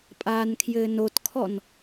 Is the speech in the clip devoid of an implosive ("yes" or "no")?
yes